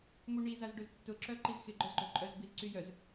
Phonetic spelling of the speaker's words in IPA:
m u ɳ i z a z ɖ ʊ z tː ʊ ǁ œ ǃ i z x ɪ ɡ͡ǃ œ z ɡ͡ǃ œ ǃʼ œ z b i z ǀ y j œ z

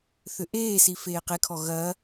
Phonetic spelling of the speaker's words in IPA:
θ ʏ ʔ eː s i f eː q e kʰ ɔ ɣ ɐ

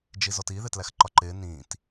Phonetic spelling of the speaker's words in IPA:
d͡ʒ i z ɔ t i ð ɪ t l æ x ǃ ɒ ǃ ɪː n ĩː t

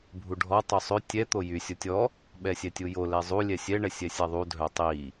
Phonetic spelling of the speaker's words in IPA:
bʱ u ɖʱ ɔ tˤ u sˤ ø tʲ ɛ t̪ o j y sʲ o tʲ ɔ | ɓ ɛ sʲ ɛ tʲ u j o l ɛ zˤ u lʲ ɛ sʲ ɛ ɳ ɛ sʲ ɛ sʲ a ðˤ u dʱ œ tˤ i

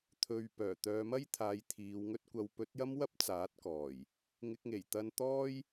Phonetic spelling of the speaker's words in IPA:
t̪ʰ ɵ˨ ɥ p œː˨˩ t̪ œː˨˧ m ɐ˥ j t̪ʰ aː˨˧ j t̪ʰ iː˨˧ w ŋ ɵ˥ t̚ kʷ ɐ˧ w p ɵ˨˥ t̚ j ɐ˥ m w ɐ˥ p̚ t͡s aː˨˥ t̚ k ɔː˨˩ j | ŋ ɪ˧ k̚ ŋ e˨˩ j t̪ ɐ˧ n t̪ ɔː˥ j

